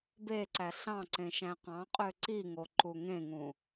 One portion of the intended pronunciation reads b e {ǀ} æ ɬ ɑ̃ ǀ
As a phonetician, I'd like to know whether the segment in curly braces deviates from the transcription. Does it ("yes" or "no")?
no